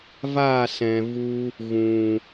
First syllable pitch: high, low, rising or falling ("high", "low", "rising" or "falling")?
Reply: falling